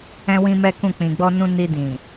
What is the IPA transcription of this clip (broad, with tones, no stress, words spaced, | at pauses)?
ɛ̃˦wĩ˦mɛ˦kũ˦˨ k͡pĩ˨ɡ͡bɔ˧nũ˧ ni˧dĩ˨